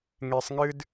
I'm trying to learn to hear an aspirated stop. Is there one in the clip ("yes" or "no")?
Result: no